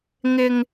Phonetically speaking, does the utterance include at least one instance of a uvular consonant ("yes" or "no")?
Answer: no